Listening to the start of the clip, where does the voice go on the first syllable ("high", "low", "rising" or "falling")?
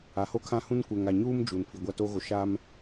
rising